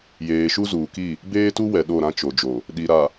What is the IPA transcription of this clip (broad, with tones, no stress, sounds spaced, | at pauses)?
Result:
j eː˨ ʃ u˦ z uː˨ k i˦˨ | b eː˦ t u˦ w ɛ˨ ɗ o˦˨ ɾ ã˦ t͡ʃ o˨ d͡ʒ o˨ | ɗ i˨ ɾ a˨